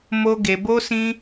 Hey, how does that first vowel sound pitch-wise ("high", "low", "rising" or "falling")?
high